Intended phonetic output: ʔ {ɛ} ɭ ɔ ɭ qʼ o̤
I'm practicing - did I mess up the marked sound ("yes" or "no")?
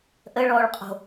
yes